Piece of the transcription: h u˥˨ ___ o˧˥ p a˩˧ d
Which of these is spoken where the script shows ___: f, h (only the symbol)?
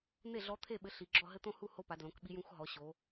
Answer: h